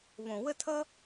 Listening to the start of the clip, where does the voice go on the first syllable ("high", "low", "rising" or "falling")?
low